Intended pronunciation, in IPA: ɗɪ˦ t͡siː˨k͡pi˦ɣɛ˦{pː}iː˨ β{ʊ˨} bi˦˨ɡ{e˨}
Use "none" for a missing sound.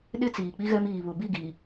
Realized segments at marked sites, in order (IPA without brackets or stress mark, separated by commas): m, ʊ˨, i˨